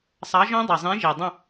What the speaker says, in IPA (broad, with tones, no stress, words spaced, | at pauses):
sˤɑ˨˥ʒɔ̃˦˥ dˤi˨˩zˤĩ˨˥ʒi˨˩ dˤə̃˦˨